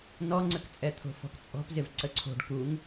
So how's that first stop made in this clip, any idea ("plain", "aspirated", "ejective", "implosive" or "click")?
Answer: click